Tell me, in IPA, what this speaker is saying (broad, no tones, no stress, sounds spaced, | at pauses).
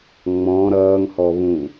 ŋ͡m ɔ̃ ɾ ʌː ŋ h ɔ β ũ